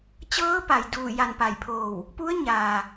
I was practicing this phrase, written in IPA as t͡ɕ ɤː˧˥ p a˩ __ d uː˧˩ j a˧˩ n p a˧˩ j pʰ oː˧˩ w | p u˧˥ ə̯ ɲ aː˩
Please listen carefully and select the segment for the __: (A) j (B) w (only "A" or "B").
A